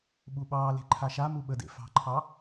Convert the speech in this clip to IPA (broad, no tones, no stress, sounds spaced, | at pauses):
ɓ u ɓ ɑː l e̤ ǃʰ a ʃ a m u ɓ ə d ḛ f ɑ̤ ǃʰ ɑ